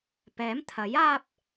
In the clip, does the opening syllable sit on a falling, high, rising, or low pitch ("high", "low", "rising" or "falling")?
rising